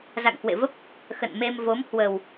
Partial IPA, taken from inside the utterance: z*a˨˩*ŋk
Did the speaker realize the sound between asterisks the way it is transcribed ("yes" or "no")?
no